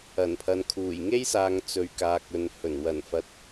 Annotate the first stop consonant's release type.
aspirated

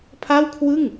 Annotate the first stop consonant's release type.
aspirated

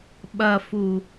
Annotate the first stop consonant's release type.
implosive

